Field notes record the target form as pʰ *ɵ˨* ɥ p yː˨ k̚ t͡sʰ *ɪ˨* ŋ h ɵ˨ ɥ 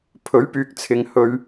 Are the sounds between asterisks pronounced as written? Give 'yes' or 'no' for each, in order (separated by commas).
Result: no, yes